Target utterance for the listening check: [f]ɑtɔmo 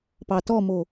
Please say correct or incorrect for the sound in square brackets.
incorrect